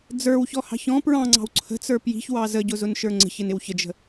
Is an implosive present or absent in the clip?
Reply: absent